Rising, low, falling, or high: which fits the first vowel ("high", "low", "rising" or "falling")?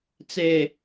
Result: low